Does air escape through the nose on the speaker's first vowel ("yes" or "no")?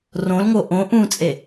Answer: yes